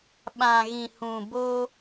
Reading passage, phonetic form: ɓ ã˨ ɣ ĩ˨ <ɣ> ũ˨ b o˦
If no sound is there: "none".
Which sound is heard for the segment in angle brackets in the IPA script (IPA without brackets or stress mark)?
h